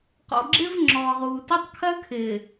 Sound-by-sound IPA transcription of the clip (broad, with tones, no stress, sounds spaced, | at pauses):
q ɔ̰˨ ɡ͡ǁ ɪː˦ v ŋ͡ǁ ɔː˨ ʁ uː˨ t ɪ˦ tˤ kʰ ɜ˦ kʰ ɪː˨